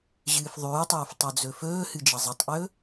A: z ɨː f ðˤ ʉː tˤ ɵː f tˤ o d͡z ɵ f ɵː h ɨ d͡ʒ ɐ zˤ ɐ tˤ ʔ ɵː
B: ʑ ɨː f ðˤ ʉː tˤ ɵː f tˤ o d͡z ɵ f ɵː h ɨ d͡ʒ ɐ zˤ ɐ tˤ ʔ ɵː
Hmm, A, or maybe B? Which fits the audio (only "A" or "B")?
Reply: B